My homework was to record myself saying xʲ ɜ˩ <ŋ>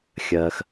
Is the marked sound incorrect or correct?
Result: incorrect